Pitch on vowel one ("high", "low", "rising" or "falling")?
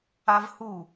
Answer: high